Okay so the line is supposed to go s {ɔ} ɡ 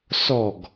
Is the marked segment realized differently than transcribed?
no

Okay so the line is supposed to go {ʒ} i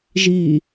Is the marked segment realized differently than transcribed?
no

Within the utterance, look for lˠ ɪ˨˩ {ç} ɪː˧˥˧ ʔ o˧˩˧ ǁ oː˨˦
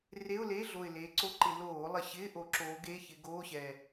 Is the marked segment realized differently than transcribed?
yes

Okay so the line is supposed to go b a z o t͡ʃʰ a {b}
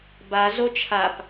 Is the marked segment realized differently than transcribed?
yes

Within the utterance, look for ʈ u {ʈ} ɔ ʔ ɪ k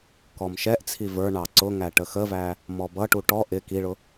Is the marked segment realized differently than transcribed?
no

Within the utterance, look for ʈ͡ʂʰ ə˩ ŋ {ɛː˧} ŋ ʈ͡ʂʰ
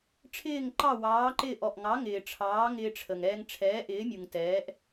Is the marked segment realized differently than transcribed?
no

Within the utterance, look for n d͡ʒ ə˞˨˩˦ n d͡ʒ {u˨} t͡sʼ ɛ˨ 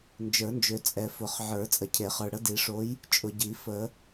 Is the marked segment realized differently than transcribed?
yes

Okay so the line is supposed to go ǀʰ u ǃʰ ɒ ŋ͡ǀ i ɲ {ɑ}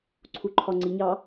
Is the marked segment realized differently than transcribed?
no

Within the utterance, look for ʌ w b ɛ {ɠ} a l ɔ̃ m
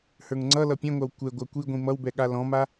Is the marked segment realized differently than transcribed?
no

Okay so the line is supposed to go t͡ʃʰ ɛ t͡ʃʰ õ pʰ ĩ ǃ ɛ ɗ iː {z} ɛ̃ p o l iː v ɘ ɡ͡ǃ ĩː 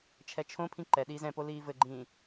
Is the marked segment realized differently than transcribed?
no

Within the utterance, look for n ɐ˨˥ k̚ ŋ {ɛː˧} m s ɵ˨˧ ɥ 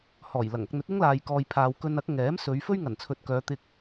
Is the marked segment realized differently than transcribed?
yes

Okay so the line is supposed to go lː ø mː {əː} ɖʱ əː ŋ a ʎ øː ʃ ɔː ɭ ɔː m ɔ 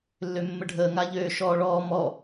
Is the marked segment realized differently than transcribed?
yes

